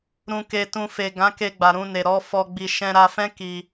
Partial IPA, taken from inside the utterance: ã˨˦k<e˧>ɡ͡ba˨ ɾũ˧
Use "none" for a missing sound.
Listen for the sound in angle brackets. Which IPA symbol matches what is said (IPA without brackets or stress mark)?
e˧